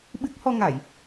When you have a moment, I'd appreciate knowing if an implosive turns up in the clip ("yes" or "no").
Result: yes